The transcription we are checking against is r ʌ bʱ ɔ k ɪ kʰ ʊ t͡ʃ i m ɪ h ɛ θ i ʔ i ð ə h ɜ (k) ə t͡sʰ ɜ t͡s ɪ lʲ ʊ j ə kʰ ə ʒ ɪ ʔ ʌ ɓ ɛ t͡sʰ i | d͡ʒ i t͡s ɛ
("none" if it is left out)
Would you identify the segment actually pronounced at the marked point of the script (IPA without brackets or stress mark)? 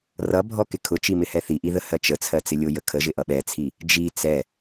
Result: t͡ʃ